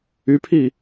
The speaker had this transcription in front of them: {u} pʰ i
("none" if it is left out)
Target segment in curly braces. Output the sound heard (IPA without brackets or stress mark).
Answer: y